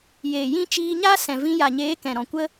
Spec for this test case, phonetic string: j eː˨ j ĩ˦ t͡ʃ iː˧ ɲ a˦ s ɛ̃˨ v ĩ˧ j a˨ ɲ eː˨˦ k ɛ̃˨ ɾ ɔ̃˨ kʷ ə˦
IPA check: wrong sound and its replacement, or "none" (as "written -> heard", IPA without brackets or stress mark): none